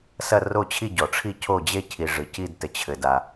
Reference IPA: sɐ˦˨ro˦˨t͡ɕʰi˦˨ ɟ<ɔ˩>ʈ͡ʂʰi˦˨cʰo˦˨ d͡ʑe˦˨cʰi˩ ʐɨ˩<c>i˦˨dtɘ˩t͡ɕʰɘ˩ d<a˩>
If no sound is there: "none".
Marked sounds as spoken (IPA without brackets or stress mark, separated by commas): ɔ˩, c, a˩